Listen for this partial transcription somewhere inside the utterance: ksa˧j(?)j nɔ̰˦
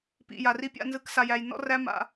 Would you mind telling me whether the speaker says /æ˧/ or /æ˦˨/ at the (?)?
æ˧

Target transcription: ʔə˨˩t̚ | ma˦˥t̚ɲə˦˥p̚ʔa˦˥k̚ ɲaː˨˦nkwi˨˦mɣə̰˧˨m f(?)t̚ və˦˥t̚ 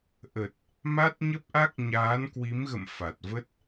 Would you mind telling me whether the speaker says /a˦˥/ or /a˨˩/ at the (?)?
a˨˩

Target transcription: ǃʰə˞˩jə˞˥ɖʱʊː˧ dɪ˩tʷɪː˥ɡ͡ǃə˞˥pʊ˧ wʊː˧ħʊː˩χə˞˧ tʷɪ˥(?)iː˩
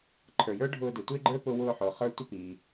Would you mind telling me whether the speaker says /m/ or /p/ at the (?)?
p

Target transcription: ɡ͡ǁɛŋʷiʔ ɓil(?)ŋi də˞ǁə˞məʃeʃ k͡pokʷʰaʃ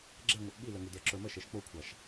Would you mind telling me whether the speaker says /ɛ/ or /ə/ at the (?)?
ə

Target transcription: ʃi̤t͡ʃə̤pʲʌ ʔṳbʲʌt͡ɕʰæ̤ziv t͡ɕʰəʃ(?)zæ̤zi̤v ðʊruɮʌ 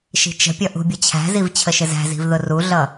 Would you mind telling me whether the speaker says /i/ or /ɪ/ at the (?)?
ɪ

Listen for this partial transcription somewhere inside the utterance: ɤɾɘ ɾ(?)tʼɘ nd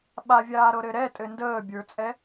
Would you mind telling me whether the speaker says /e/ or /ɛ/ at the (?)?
ɛ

